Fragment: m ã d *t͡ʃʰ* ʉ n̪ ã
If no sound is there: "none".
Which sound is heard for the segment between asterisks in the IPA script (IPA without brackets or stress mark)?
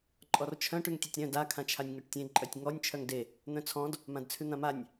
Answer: t͡sʰ